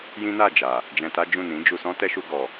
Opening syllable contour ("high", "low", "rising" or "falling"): high